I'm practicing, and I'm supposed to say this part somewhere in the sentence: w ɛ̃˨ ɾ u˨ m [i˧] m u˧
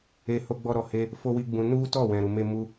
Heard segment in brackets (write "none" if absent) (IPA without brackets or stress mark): e˧